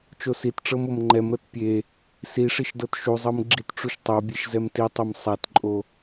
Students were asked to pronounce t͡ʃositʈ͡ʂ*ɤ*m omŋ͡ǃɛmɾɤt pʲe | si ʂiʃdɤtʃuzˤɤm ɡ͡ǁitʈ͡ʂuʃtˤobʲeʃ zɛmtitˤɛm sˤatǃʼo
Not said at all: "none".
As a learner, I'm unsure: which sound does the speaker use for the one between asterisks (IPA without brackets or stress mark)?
ɤ